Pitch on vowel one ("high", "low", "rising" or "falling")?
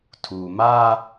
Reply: low